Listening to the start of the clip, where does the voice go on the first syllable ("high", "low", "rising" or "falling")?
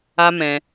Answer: high